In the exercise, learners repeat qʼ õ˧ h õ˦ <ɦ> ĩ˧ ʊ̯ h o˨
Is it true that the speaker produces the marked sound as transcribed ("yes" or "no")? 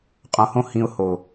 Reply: no